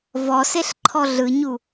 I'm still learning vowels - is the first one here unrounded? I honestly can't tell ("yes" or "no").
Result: no